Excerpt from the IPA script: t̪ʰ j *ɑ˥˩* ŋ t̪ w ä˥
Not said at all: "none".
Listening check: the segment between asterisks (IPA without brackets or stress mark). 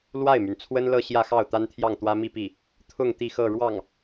ɑ˥˩